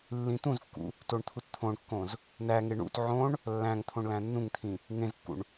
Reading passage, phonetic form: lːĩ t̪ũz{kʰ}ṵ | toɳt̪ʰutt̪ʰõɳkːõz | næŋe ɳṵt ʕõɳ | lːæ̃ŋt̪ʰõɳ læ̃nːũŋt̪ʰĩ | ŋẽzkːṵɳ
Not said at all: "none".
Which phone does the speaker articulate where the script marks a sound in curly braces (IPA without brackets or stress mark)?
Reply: kː